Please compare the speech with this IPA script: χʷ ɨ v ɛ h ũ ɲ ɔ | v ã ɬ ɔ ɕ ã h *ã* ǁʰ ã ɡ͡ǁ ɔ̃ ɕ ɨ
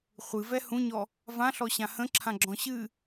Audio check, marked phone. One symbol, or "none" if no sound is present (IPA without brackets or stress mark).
ə̃